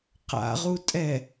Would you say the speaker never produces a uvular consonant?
no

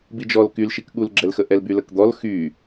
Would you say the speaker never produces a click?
no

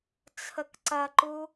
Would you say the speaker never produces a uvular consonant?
yes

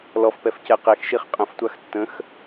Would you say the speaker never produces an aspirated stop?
yes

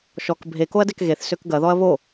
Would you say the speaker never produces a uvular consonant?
yes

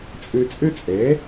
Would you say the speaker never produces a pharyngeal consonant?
yes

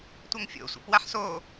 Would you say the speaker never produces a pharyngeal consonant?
no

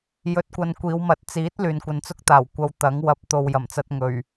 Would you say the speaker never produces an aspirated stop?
yes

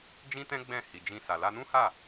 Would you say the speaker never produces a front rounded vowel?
yes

